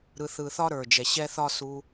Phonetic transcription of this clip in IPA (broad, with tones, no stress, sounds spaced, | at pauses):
ɾ ɯ˧ θ ɯ˧ θ ɒ˦ ɾ ə˞˨ d͡ʒ ɛ˨ ɕ ɛ˧ θ ɒ˦ s u˧